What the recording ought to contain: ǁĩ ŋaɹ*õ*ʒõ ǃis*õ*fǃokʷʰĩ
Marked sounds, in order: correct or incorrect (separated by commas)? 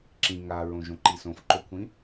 correct, correct